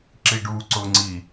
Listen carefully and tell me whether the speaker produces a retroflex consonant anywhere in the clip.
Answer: yes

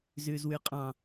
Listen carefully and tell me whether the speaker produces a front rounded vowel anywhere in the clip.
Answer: no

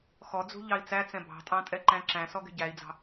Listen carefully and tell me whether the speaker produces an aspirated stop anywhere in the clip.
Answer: no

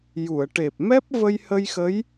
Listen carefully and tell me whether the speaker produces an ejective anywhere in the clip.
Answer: no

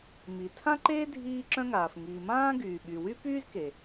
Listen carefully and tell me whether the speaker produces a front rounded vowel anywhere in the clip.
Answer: yes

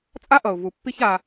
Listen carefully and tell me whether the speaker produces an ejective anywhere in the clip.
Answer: yes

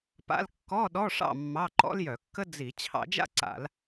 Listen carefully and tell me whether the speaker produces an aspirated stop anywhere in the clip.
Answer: yes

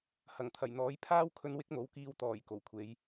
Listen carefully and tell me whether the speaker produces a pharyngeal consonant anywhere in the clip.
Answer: no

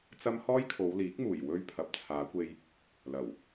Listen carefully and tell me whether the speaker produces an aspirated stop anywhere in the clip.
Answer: yes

